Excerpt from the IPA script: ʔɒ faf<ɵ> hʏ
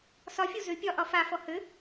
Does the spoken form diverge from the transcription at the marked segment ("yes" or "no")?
yes